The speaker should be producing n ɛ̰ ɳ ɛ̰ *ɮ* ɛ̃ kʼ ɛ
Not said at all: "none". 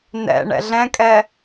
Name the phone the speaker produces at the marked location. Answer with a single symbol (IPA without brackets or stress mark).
ɮ